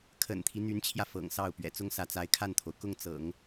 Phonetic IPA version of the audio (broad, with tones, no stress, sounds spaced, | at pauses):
kʰ ə̰˨˩ n t̪ʰ i˦ n̪ y˧˥ n t͡ɕʰ j ä˧ f ɤ̰˨˩ ŋ s ɑ˥˩ ʊ̯ p ɥ ɛ̰˨˩ t͡s ʊ˥ ŋ s ä˧˥ t͡s a˧˥ ɪ̯ kʰ a˥˩ n t̪ʰ o˩ ʊ̯ k ʊ˥˩ ŋ t͡s ɤ̰˨˩˦ ŋ